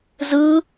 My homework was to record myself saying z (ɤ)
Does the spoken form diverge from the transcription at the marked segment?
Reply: yes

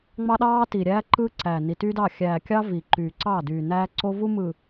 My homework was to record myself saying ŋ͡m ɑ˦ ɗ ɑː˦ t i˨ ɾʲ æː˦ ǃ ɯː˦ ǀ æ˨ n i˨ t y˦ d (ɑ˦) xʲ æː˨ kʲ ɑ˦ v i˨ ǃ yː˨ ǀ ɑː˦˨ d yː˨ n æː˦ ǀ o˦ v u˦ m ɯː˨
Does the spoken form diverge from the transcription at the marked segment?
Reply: yes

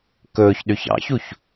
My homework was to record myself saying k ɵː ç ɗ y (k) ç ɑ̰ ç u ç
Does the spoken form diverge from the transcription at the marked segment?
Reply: yes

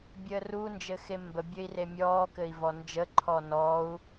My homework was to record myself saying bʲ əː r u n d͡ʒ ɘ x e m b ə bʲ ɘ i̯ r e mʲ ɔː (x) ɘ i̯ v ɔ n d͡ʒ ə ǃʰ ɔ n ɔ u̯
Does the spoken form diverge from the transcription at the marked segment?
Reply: yes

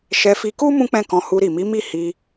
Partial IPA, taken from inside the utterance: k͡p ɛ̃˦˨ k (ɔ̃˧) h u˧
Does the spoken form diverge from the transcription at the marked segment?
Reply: no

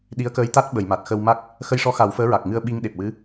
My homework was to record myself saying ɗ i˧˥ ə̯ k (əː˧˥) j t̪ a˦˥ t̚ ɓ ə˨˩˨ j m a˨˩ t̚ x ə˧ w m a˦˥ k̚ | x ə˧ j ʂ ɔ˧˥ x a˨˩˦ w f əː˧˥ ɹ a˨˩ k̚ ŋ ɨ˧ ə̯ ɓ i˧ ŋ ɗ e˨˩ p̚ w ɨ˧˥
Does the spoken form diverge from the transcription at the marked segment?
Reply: no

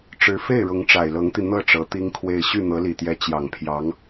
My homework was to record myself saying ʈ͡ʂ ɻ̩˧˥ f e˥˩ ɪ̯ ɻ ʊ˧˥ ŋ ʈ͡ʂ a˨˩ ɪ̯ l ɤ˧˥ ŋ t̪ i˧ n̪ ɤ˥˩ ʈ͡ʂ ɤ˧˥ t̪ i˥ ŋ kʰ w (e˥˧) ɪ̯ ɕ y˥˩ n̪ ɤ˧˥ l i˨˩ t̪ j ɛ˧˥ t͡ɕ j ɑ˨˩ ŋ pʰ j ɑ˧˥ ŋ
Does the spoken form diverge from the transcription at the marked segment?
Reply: no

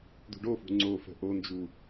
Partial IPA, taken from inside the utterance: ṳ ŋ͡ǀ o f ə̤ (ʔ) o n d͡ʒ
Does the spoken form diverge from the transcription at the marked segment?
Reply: no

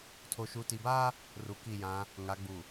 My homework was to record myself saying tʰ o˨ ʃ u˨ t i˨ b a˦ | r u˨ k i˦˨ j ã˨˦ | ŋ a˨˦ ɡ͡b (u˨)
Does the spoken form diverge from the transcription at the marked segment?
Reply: no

